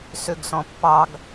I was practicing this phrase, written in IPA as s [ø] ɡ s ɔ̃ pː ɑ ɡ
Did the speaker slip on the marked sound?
no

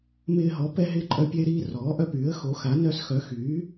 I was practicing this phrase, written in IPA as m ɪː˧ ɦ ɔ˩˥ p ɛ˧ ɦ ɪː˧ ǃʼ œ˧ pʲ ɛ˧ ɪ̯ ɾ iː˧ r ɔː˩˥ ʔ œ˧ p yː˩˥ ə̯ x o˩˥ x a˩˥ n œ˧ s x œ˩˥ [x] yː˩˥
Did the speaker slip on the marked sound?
no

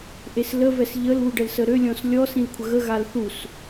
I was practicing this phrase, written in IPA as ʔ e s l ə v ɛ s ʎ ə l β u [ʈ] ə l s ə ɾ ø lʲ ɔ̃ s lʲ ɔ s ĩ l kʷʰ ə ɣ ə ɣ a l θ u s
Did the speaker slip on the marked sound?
yes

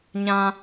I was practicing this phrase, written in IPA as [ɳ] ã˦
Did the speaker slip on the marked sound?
yes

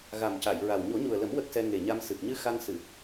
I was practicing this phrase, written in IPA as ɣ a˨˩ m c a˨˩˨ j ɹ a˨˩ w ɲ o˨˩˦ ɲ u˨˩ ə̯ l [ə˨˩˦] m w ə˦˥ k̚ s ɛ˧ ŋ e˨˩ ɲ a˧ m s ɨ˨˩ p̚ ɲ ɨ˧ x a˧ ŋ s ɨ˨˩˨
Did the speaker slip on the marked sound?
no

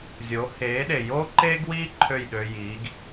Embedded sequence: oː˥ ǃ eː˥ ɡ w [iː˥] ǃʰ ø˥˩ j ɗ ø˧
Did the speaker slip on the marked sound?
no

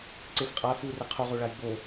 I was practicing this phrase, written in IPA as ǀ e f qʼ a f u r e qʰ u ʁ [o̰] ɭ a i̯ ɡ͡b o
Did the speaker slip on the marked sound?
yes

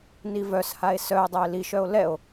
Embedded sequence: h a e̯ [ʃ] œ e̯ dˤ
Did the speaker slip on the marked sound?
yes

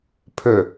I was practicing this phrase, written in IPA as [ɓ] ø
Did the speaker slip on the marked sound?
yes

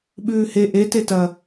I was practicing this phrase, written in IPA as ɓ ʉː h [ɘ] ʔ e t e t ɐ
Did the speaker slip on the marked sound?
yes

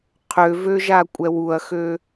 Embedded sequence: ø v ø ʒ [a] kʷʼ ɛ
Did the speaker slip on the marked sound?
no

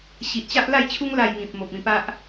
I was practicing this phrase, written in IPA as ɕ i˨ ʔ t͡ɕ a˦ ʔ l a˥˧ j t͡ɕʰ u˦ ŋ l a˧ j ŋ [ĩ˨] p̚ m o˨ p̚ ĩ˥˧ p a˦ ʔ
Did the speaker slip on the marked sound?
no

